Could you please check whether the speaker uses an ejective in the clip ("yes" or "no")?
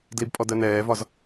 yes